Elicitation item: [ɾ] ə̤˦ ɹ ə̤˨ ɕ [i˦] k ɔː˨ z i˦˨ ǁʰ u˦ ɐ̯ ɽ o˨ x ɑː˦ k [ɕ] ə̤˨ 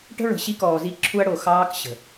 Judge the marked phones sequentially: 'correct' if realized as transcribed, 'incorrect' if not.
incorrect: ʈ, correct, correct

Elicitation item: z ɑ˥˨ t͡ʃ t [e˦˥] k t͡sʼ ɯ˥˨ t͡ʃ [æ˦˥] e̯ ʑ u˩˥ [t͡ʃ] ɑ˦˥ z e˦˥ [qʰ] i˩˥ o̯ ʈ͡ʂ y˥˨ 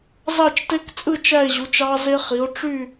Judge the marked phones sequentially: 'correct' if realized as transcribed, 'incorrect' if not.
correct, incorrect: æ˥˨, correct, incorrect: χ

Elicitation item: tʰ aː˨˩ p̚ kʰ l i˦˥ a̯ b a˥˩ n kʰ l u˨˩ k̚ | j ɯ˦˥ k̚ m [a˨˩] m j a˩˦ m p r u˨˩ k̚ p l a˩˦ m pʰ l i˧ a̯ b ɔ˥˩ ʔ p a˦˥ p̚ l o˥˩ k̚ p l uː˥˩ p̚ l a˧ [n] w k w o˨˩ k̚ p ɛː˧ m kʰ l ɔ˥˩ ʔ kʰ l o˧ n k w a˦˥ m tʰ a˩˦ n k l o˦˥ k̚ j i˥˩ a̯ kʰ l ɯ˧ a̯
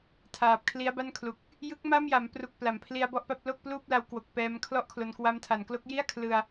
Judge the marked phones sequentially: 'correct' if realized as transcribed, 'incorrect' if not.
incorrect: a˥˩, incorrect: none

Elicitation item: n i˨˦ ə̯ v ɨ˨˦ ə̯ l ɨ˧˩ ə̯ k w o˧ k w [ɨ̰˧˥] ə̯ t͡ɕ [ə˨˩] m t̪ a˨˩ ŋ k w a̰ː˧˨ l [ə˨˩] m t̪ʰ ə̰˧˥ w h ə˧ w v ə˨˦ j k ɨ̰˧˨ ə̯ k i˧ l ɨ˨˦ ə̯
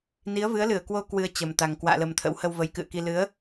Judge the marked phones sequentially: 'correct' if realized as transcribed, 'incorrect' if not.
incorrect: ɨ˧, correct, correct

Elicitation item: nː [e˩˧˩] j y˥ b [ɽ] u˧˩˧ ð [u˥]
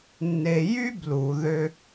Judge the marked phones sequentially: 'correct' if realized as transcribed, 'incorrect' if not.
incorrect: e˧, incorrect: l, incorrect: ø˥

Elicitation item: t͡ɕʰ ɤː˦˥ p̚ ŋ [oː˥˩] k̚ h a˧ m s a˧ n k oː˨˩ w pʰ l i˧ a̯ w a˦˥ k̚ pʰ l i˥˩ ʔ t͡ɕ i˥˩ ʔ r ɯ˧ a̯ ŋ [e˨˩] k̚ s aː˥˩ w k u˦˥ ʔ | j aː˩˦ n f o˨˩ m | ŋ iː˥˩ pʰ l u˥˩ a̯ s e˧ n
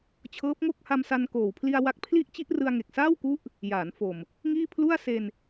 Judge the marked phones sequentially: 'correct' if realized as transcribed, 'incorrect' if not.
incorrect: o˥˩, correct

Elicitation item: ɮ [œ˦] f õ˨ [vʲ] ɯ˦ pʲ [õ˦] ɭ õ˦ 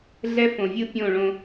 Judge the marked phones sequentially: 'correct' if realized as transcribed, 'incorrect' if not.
incorrect: ɛ˦, correct, incorrect: õ˦˨

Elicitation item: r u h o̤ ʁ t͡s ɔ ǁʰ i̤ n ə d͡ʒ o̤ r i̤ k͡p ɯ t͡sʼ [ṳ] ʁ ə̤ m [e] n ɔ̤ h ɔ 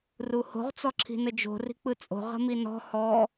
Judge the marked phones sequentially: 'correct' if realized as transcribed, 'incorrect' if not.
incorrect: o̤, incorrect: i

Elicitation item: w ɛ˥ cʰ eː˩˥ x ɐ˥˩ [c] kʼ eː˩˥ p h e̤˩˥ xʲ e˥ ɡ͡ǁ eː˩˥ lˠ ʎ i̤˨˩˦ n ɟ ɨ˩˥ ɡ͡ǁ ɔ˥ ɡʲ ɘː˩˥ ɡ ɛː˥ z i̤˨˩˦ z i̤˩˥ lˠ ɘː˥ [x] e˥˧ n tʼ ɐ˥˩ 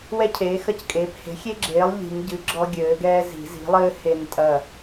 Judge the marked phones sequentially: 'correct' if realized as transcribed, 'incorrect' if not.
correct, incorrect: h

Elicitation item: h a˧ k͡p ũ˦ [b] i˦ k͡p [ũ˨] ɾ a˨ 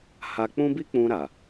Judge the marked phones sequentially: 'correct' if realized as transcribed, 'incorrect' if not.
correct, incorrect: ũ˧

